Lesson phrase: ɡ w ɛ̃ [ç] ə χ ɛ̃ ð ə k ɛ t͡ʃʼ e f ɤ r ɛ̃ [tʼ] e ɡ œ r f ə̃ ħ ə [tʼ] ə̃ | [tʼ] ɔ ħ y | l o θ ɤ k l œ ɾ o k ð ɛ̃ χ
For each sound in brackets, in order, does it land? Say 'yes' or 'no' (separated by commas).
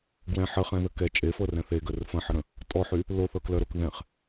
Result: no, no, no, yes